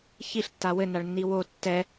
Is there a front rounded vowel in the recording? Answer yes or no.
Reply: no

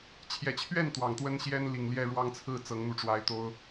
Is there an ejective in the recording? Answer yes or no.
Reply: no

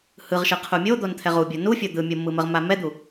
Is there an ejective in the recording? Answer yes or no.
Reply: no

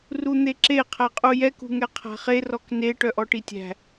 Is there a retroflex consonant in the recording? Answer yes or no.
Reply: yes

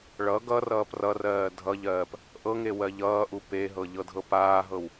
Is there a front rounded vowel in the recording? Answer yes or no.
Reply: no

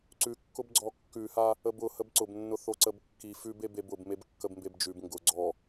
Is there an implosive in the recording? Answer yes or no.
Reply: no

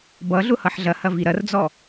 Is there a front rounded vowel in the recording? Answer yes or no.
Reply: no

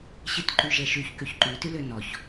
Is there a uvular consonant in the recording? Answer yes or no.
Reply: no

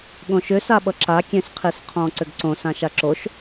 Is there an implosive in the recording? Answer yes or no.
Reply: yes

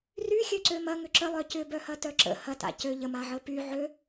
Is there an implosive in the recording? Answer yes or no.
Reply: no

